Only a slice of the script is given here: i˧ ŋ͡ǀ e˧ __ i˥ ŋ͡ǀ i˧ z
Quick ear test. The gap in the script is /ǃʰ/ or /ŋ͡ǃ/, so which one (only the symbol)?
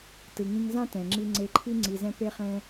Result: ǃʰ